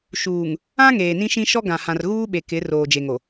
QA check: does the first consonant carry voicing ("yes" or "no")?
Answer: no